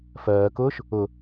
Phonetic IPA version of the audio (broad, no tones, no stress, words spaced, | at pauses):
fɜːkʊːʃ | ʊ